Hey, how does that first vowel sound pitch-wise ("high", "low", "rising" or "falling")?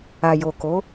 low